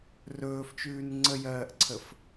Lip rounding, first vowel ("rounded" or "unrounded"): rounded